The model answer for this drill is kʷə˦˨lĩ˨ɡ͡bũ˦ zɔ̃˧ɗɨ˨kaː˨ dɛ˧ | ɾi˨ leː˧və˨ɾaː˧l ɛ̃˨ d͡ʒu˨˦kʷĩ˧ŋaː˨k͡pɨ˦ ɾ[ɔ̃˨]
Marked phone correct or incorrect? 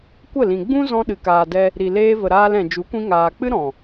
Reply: correct